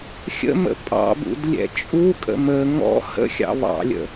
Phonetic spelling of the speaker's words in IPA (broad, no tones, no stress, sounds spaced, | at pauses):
xʲ ə̰ m ə̰ pʼ ɑ̰ b ṵ d lʲ ɛ̰ t͡ʃʼ u kʼ ə̰ m ə ŋ ɔ̰ h ə̰ xʲ ɑ̰ β ɑ̰ lʲ ə̰